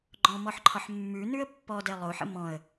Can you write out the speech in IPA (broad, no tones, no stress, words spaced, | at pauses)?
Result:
ɡ͡ǃɔ̃mɔħǃʰɒħ mːʉ nʉə̯pːɔ dɛlˠoħə̰ mɔ̃ə̯